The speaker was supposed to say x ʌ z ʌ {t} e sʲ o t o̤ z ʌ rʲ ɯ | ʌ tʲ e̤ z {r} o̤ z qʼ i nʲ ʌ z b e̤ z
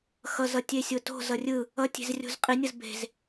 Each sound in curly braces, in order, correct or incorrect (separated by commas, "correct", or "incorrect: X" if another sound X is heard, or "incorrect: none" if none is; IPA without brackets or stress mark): incorrect: tʲ, incorrect: rʲ